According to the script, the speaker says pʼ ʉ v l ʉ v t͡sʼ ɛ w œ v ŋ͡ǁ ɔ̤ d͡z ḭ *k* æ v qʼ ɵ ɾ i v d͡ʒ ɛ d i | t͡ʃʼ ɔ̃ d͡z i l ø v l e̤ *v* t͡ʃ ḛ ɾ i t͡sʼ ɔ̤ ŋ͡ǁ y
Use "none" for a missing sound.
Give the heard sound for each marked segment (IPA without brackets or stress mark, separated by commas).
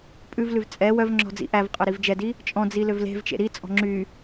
ʔ, v